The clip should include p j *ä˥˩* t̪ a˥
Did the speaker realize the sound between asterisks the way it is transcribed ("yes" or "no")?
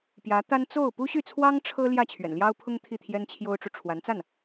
no